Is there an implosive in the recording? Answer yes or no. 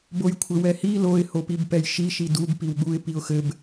yes